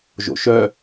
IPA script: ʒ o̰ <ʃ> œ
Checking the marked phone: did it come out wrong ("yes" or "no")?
no